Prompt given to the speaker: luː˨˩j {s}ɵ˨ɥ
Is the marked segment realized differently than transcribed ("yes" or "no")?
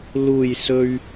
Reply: no